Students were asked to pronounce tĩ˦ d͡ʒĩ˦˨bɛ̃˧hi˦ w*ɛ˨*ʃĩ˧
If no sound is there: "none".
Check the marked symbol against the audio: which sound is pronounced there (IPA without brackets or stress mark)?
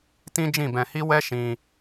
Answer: ɛ˦